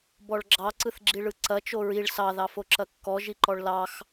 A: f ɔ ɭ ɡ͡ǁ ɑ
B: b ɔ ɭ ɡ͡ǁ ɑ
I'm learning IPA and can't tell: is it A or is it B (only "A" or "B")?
B